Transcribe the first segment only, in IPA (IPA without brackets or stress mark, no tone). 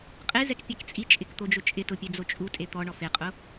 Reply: qʼ